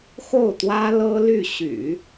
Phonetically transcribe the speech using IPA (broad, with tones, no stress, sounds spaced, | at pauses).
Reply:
x o˥˩ ʊ̯ t̪ w ä˥ l ɤ˥ l y˥˩ ɕ y̰˨˩˦